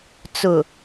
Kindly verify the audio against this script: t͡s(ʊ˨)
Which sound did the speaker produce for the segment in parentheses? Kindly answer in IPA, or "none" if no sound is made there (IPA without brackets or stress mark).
ʊ˨